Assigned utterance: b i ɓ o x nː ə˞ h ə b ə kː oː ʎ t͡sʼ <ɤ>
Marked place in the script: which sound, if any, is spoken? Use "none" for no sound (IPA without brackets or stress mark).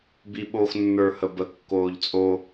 o